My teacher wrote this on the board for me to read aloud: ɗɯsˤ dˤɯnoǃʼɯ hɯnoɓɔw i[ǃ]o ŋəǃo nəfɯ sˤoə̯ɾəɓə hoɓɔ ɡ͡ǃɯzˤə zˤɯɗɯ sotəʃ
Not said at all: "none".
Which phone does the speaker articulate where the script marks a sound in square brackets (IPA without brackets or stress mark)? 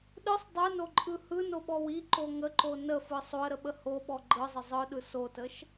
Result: ǃ